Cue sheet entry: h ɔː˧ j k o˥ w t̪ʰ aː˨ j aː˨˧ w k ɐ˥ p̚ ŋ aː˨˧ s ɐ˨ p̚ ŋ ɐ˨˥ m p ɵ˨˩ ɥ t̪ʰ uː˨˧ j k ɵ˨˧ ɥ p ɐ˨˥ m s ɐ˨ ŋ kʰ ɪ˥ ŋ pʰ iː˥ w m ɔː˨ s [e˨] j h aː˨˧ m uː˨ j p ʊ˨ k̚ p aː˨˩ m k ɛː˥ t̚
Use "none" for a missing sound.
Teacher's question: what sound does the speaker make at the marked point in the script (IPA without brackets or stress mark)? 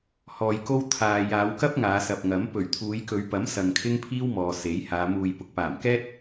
e˨˥